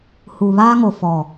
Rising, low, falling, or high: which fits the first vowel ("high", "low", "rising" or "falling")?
low